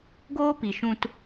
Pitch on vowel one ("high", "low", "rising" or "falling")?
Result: high